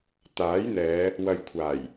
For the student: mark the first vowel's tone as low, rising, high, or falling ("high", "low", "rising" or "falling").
rising